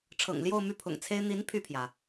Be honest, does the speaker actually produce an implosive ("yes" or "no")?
no